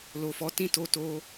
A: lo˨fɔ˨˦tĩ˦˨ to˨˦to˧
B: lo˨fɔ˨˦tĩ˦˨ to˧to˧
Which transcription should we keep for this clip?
B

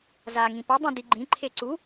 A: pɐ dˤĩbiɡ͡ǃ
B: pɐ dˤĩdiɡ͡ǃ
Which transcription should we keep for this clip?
B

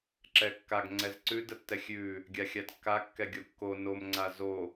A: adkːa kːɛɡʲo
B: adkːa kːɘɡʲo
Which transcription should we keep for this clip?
A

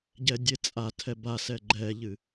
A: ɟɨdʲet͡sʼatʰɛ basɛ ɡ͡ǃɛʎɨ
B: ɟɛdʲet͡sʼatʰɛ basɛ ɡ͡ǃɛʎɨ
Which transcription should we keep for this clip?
B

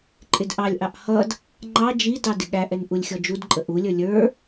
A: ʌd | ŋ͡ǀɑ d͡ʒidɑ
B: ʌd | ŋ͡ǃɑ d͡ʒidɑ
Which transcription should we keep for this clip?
B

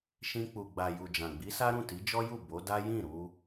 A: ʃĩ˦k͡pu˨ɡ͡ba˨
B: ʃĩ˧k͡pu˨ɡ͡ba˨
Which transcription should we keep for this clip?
B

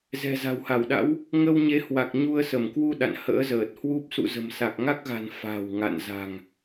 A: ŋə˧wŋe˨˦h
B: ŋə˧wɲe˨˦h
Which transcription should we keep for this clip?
B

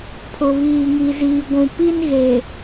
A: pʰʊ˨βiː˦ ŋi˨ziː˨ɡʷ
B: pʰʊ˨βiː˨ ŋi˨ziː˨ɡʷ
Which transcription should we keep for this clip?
B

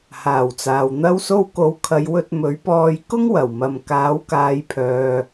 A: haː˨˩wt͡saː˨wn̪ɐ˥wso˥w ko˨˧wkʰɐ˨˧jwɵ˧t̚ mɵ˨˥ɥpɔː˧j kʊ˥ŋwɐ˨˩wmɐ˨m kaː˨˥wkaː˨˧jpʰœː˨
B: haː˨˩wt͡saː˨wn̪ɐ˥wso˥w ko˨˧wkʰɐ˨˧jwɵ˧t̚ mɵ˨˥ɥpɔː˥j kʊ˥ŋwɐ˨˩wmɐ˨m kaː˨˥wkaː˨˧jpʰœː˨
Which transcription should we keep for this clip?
A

